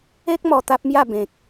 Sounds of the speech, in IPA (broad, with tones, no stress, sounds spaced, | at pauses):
e˦ k̚ m ɔ˧ t̪ a˦ p̚ m j a˥˧ b ẽ˨ k̚